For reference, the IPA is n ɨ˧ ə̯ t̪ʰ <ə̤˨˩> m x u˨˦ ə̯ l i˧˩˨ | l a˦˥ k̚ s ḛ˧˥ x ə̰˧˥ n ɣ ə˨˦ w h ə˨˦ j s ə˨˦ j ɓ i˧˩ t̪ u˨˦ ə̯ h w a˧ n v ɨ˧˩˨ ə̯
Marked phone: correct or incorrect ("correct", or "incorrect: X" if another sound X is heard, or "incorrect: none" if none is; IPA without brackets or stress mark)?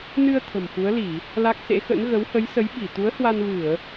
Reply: correct